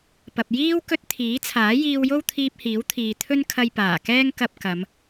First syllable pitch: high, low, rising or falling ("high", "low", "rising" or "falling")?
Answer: low